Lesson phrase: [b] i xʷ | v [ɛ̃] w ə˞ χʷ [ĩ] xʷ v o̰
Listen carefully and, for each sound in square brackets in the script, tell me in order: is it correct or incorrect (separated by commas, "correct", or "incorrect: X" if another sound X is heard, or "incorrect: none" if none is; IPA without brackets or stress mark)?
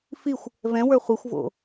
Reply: incorrect: f, correct, incorrect: i